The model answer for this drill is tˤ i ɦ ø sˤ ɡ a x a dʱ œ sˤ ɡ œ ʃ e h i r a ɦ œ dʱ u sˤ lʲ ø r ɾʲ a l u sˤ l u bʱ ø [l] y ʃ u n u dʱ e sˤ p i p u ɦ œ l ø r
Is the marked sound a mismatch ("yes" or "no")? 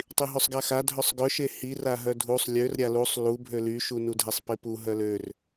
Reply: no